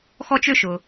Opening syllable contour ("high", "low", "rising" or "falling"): high